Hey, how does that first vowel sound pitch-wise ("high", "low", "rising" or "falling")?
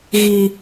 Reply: low